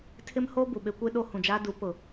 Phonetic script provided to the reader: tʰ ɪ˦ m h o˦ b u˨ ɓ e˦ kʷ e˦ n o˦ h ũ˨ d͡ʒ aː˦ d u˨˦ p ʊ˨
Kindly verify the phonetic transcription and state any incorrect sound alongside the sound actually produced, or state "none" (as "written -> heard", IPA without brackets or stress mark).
n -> ɗ